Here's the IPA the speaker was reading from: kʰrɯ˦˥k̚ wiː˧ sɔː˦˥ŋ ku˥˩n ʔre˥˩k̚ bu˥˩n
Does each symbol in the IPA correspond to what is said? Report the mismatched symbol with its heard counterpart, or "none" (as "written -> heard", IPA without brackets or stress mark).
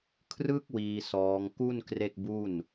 ʔ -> k